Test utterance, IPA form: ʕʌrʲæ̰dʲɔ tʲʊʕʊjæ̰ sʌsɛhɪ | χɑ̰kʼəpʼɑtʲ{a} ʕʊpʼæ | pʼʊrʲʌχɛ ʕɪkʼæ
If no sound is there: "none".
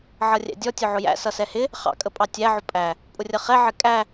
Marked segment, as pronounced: æ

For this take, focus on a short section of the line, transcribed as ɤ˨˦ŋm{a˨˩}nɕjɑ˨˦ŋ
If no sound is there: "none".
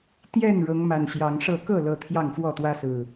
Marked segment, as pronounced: a˨˩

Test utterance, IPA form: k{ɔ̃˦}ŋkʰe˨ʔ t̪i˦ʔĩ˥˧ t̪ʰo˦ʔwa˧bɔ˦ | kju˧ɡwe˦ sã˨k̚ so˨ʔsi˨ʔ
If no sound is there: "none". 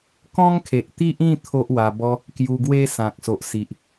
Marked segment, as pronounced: ɔ̃˦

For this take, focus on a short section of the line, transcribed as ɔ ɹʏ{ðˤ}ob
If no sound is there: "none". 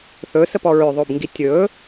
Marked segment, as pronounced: ðˤ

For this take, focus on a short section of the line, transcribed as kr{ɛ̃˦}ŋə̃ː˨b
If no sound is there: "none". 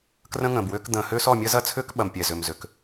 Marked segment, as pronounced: ə̃˦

